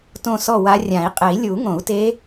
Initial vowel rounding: rounded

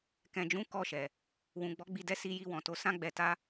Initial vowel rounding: unrounded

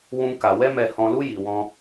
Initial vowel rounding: rounded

